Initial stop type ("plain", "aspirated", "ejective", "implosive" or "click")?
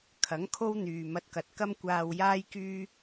aspirated